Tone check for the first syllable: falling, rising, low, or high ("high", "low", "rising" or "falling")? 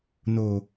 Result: low